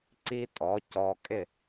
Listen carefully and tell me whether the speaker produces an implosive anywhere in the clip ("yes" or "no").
no